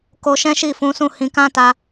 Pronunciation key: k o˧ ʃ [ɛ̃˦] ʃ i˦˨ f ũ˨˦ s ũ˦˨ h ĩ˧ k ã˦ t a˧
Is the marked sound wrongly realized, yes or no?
no